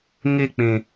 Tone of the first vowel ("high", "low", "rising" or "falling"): falling